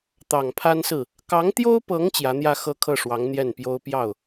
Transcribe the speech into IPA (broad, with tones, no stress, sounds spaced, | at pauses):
t̪ ɑ˨˩ ŋ pʰ a˥ n s ɹ̩˥˩ | k ɑ˧˥ ŋ t̪ j o˥ ʊ̯ p ɤ˧˥ ŋ t͡ɕ j ä˧˥ n̪ j ä˥˧ x ɤ˥˧ kʰ ɤ˥˩ ʂ w ɑ˧˥ ŋ n̪ j ɛ˥˩ n p j o˥ ʊ̯ p j ɑ˥˩ ʊ̯